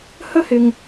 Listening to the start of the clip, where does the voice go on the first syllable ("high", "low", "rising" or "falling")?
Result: high